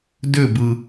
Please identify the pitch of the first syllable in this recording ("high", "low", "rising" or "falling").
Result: falling